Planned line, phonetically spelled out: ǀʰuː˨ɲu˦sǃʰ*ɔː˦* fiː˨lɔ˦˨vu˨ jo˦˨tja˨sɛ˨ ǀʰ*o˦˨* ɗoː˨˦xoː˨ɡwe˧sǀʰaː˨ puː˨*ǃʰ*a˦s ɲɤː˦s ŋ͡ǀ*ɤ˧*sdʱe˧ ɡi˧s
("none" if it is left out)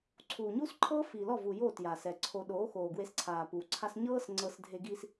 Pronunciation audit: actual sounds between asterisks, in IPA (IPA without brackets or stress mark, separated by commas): ɤː˦, o˨, ǀʰ, ɤ˧